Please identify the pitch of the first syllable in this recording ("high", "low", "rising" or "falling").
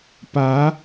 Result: rising